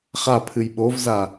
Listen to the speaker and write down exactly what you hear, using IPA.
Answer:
χ a pʰ ɨ j ɓ o v z a

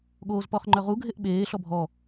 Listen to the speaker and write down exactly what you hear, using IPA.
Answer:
ɠ oː z p ɔ χ ŋ͡ǃ œ ʁ u ɡʱ e ʔ ɓ eː ɬ ɔ bʱ ɔ

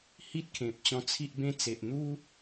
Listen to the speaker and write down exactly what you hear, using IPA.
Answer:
h i˦ t̚ kʰ ẽ˨ p̚ t͡ɕ ɔ̃˧ t͡sʰ i˦ ʔ b ẽ˦ t͡s e˨ ʔ n̪ u˦

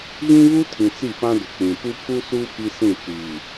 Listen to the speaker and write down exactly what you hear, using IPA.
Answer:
ɣ ĩ˦ β u˦ tʰ ĩ˨ t͡s i˦˨ p ã˦ d ʊ˨ k͡p ĩ˨ p u˦ pʰ u˦ s uː˦ p i˦ s ĩ˦˨ t͡ʃ iː˨

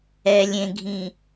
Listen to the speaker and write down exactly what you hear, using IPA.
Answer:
ɛ lʲ ẽ ɡʱ ĩ

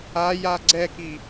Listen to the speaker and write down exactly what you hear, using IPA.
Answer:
a j a ɡ͡ǀ ɛ k i

